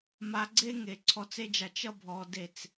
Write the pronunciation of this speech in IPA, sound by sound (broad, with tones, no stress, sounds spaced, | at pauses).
m a˧ ɡ͡ǀ e˦ ŋ e˨ ǀʰ ɔ˧ t͡s e˦ d͡ʒ a˧ t͡ʃ ʌ˦ bʱ ɔ˧ d e˦˨ t͡s